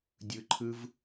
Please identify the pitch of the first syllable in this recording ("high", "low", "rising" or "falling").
high